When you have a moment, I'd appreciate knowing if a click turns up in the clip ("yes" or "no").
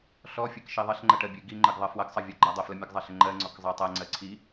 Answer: yes